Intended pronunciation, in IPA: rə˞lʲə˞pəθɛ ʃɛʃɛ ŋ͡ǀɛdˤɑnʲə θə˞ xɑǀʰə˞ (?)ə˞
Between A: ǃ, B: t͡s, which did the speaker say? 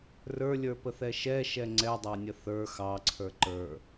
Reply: A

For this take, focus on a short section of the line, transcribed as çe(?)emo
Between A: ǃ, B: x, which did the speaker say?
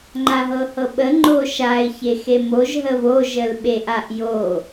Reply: B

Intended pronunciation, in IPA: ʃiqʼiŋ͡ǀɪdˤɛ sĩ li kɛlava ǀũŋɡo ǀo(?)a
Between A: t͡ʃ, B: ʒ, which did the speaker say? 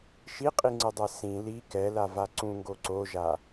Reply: B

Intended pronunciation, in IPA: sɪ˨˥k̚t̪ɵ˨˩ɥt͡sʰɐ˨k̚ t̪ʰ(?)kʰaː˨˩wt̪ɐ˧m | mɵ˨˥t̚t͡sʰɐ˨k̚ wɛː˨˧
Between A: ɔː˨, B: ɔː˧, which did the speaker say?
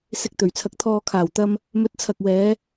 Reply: A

